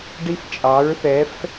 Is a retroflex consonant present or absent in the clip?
present